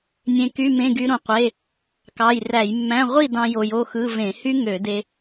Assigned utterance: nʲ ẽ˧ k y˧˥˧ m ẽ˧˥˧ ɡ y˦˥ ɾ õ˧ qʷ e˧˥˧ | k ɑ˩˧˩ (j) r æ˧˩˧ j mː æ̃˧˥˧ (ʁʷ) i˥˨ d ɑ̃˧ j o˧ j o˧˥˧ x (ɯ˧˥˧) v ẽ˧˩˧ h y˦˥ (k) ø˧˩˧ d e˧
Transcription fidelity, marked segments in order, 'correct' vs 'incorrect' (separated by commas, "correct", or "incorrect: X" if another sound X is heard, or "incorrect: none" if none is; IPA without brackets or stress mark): correct, correct, correct, incorrect: ŋ